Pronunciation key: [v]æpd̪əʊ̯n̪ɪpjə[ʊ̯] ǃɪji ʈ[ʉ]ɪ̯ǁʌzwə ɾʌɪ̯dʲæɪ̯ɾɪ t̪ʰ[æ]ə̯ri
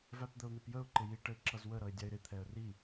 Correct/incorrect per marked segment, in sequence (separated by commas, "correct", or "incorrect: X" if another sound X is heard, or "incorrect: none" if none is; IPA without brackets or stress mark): correct, correct, incorrect: ə, incorrect: ɛ